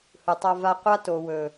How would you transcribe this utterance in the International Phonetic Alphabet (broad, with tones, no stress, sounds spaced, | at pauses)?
h ɯ˨ tˤ a˧ v a˧ qʷ a˦ t o˨ w ɵ˨